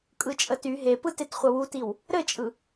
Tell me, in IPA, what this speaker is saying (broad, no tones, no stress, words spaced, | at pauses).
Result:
kʼɯt͡ʃʼəty ɦepɯtet χʷəwutiw | ɾɘt͡ʃʼɯ